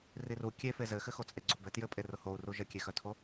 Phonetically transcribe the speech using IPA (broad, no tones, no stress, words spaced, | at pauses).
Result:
riru kʲe fezɘxɘ xot͡sʼeɡ͡ǀobɘ tjɘpʼerʊ hou̯ru ʒəkʲexœtʰo